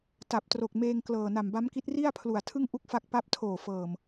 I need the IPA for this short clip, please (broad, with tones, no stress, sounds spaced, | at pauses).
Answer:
t a˨˩ p̚ t r o˨˩ k̚ m eː˧ ŋ k l ɤː˨˩ n a˨˩ m b a˦˥ m k i˦˥ t̚ r i˥˩ a̯ pʰ l u˨˩ a̯ tʰ ɯ˥˩ ŋ ʔ u˥˩ k̚ f a˦˥ k̚ p a˦˥ p̚ tʰ oː˨˩ f ɤː˨˩ m